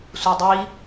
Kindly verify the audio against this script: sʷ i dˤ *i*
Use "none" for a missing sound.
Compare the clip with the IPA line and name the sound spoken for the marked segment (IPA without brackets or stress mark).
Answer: i